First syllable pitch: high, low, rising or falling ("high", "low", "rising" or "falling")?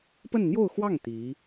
falling